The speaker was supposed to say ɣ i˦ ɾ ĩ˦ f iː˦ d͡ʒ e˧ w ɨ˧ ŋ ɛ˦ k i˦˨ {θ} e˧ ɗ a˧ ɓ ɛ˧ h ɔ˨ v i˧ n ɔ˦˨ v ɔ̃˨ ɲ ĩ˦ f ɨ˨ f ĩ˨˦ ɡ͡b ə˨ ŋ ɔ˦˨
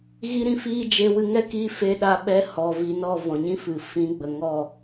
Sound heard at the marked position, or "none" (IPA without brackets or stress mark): f